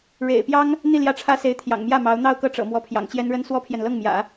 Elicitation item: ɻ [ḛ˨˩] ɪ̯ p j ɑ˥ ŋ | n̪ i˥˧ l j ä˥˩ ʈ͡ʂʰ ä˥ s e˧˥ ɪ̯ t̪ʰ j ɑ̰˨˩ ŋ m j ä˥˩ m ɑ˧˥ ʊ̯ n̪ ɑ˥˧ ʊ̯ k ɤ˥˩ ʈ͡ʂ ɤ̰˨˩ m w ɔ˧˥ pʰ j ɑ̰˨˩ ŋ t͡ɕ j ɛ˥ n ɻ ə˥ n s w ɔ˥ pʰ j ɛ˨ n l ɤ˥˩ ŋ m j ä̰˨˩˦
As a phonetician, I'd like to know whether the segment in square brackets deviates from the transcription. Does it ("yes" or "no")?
no